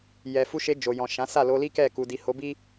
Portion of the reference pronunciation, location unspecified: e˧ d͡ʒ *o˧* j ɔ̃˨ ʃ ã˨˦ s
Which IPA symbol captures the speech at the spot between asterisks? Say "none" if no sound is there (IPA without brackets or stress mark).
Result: o˨